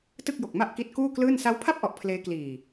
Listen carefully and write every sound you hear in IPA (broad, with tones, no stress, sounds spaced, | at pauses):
t ɯ˥˩ k̚ j o˨˩ k̚ m a˥˩ ʔ k i˦˥ t̚ k uː˥˩ k l ɯː˥˩ n s a˦˥ w pʰ a˥˩ p̚ ʔ ɔ˨˩ ʔ pʰ l eː˦˥ k l iː˨˩